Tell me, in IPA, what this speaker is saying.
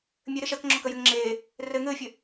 mʲ ɘ ɾ ɘ ʃ ɜ k ŋ͡ǁ ɔ k ə j ɘ ŋ ŋ͡ǁ eː | r ɘ ŋ ɘː fʲ ɘ

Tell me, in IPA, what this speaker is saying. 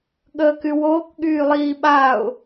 ɠ əː k y w oː k ɠ yː lˠ iː ɓ a ʊ̯

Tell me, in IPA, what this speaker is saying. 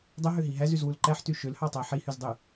dˤ ø ɦ ø ɦ i ɦ æ z y z w u l ǃ æ ħ t y ʃ ø l h ɑ tˤ æ ħ i h y z dˤ y

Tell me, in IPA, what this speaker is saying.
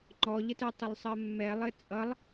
ŋ͡ǃ ɔ ʎ ə t ɜ tˤ ə lˠ sˤ ɜ mː ɛ lˠ ɘ t͡sʼ ʌ lˠ

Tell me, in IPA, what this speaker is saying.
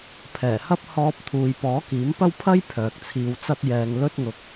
pʰ ɛː˨˩ h ɐ˥ p̚ h ɔː˧ p̚ t̪ʰ uː˨ j p ɔː˨˥ k iː˨˥ m p ɐ˥ w pʰ ɐ˥ j pʰ œː˨ k̚ t͡sʰ iː˧ w t͡s ɐ˥ t̚ j ɛː˧ ŋ l ɵ˥ t̚ ŋ ʊ˧ k̚

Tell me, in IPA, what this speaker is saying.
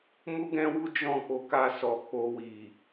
m u˦ ɡ ɛ̃˦ w u˦ d͡ʒ ɔ̃˦˨ k͡p o˨˦ k a˧ s ɔ˨ k͡p o˧ w i˨

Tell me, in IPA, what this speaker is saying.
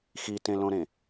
x i t ẽ l õ ɾ ẽ

